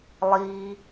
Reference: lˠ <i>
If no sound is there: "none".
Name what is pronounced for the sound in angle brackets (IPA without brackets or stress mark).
iː